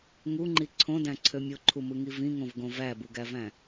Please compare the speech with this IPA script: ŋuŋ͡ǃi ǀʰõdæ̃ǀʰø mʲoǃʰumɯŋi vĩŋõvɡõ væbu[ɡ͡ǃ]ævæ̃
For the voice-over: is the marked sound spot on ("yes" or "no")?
no